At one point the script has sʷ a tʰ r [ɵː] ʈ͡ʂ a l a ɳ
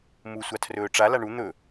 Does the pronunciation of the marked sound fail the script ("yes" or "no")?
no